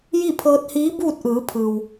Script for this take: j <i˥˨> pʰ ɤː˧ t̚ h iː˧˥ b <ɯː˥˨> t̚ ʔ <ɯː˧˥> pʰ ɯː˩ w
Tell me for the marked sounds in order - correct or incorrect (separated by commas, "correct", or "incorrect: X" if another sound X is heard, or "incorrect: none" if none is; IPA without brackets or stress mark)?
correct, incorrect: uː˥˨, incorrect: ɯː˩˧